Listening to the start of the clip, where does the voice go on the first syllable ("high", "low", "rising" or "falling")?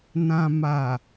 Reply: low